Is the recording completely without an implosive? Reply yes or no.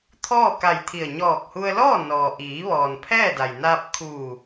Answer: yes